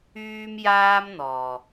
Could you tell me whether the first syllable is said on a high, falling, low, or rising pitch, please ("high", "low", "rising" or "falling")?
high